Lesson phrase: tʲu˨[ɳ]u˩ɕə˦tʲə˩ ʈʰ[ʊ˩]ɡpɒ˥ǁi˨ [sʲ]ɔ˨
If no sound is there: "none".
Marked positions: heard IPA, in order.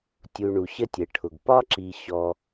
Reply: ɳ, ʊ˩, ɕ

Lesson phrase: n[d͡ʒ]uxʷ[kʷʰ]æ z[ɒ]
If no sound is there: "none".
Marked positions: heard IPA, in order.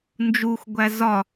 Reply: d͡ʒ, ɡʷ, ɒ

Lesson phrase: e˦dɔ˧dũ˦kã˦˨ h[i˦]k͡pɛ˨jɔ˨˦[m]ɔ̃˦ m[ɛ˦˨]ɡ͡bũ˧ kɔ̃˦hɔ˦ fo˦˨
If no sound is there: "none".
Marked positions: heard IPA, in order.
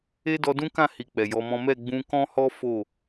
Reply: i˧, m, ɛ˦˨

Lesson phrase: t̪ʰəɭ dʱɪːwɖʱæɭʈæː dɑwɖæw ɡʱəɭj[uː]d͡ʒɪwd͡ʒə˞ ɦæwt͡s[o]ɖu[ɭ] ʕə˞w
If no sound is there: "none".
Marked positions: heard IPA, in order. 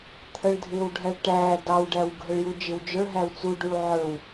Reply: u, u, ɭ

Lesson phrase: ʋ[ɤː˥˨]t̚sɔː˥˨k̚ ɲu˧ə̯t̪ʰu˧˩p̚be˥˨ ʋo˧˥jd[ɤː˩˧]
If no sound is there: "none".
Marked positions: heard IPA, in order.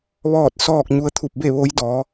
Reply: ɔː˥˨, ɔː˩˧

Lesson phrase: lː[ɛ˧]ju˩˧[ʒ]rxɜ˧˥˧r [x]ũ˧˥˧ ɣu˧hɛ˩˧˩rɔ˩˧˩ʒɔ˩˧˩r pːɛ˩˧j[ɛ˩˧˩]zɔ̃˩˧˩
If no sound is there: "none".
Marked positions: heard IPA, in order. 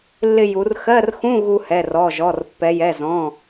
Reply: ɪ˧, none, x, ɛ˩˧˩

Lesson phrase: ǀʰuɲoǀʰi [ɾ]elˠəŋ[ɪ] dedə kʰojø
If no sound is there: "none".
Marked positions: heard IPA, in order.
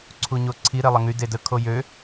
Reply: ɾ, y

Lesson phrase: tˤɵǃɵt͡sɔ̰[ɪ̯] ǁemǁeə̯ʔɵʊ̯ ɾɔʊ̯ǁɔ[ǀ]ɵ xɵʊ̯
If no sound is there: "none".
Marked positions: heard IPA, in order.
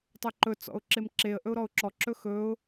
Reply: ʊ̯, ǁ

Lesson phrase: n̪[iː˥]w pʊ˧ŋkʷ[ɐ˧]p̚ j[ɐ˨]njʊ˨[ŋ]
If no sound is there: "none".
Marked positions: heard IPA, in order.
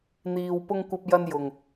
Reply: iː˧, ɐ˧, ɐ˧, ŋ

